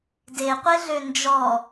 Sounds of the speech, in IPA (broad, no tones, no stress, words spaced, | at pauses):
deqʷeɮø nd͡ʒɔ